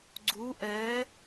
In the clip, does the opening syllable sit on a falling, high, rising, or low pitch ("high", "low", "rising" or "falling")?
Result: rising